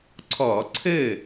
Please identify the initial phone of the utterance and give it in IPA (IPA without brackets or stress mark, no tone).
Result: ǀʰ